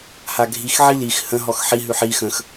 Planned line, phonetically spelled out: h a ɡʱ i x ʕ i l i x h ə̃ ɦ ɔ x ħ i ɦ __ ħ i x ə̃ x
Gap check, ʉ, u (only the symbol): ʉ